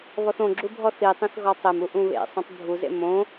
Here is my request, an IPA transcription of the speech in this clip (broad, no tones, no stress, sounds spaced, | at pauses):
β ɔ θ õ ɡ͡ǁ u bʱ ɔ θ i tˤ ĩ θ ɣ ɔ tˤ e m u ʔ ũ β ḛ sˤ ĩ tˤ bʱ u z ḛ m õ